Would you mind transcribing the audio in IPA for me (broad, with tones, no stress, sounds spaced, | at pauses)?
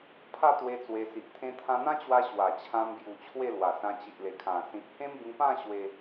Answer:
pʰ a˥˧ t̪ w e˧ t͡s w e˧ s i˨ ʔ t̪ʰ ẽ˧ t̪ʰ ã˧ n̪ ã˦ t͡ɕ w a˧ ɕ w a˨˩ t͡ɕʰ ã˧ m b j u˨˩ t͡ɕʰ w e˥˧ l w a˨˩ s ã˧ t͡ɕ i˨ ʔ l e˨˩ kʰ ã˨˩ s ĩ˨ t̚ h ẽ˦ m b ĩ˧ p ã˥˧ ɕ w e˧